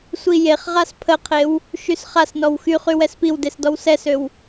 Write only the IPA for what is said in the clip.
sʷijeχʁas pʰəqʰew | ʃysχasnɔw xyχy wɛspiwdes dɔwsɛsøw

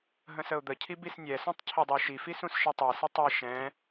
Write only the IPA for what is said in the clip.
ɦə̃səʊ̯d̪əcʰi bisnʲɛsũtˤ cʰidˤəʊ̯ʃifi sũsʃitˤɛsʏ tˤi ʃɛ̃

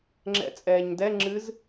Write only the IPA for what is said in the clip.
ŋ͡ǁɛ̰t͡sʼɛːɲdɛ ŋ͡ǁɨz

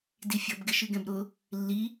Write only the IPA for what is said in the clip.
difʲʌb ɡɪʃɨɡɛ̃bɾʊ | lːi

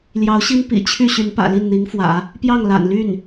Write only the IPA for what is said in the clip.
ljɑ˧˥ʊ̯ɕi˥n pḭ˨˩t͡ɕʰy˥˩ ɕy˧˥npä̰˨˩ li˥˩nn̪i˧˥ŋfwä̰˨˩˦ | pjɑ˥˩ŋla̰˨˩n ly˥˩n

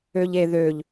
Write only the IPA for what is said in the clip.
øʎeðøʎ

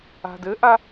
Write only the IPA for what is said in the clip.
a̤dɘʔa

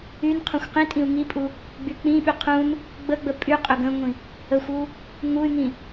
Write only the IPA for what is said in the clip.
ynqʰũxʷ qĩtʼĩu̯ ŋipʼu | ɡ͡byk͡pĩɓy qʰũn | ɡ͡bəɡ͡bə pʼyqʼɵɡ ə̃ŋʷĩ | əxʷu | ŋuy̯ŋĩ

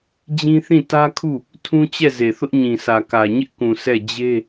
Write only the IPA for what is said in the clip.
d͡ʑĩ˦θĩ˦˨ tä˦kʰu˦˨ | tʰũ˦t͡ɕɛ˦˨ze˨ θʊ˦ʔɲĩ˨sʰä˨kä˨ ɲɪ˦ʔkũ˨ sɛ˦˨ d͡ʑe˦

